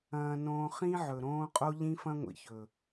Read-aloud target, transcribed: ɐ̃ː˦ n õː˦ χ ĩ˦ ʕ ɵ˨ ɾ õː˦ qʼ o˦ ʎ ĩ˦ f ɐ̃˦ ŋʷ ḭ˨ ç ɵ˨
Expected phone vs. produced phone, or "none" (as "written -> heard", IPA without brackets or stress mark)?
none